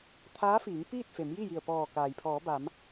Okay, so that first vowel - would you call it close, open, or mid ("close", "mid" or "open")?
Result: open